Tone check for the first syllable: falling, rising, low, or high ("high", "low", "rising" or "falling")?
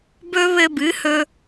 high